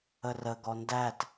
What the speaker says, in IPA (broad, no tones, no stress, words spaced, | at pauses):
ərə ɡɔndæt